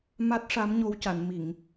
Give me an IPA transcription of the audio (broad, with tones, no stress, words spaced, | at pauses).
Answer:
ma˦˥t̚ʂa˧˥mɲo˧w ca˨˩˨nmi˨˩˨ŋ